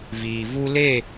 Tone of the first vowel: low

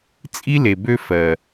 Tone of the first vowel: high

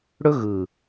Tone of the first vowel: high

